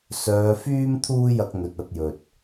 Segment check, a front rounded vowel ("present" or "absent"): present